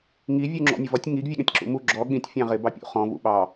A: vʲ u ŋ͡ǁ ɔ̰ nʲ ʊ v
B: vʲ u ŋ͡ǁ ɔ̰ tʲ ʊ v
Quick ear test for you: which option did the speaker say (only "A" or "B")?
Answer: A